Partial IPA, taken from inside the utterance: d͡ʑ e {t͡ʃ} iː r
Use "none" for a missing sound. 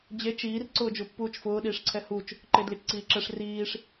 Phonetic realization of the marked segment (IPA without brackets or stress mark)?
t͡ʃ